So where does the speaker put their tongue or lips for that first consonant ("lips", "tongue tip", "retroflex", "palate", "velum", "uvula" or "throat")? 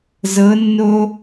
tongue tip